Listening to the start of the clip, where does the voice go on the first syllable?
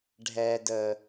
low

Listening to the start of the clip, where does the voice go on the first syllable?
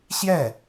falling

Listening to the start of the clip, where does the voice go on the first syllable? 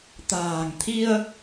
low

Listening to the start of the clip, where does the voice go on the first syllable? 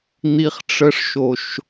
low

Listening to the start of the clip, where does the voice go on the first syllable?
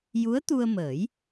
rising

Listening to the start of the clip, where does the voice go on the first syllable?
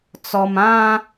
low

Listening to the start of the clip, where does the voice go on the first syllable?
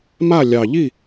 falling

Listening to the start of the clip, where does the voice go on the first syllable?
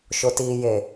low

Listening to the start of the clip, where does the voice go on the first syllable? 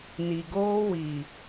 low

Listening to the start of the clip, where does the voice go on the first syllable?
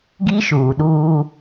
high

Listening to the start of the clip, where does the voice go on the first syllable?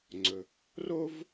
low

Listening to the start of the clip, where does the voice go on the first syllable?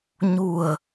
low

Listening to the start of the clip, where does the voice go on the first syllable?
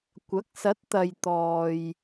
rising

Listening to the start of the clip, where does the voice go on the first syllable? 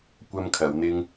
high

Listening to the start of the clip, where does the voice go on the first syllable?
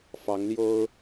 rising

